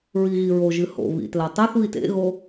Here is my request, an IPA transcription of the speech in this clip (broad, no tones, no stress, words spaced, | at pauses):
ɹiɣiɹoʒɨ ho̰βḭ tlatˤoθβit ḛɣo